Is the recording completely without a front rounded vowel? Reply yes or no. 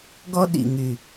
no